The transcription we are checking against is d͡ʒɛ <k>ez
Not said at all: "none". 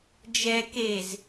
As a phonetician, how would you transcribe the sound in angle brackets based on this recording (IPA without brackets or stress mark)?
k